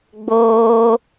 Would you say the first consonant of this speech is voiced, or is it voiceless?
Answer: voiced